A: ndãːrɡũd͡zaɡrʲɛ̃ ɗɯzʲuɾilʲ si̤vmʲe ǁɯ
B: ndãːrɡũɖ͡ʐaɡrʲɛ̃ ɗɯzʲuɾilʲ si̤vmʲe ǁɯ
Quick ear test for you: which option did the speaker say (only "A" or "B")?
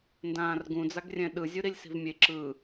A